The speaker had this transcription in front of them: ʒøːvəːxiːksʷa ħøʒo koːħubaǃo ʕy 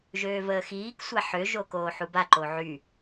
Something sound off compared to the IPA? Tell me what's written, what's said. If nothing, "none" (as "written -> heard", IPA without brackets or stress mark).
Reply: none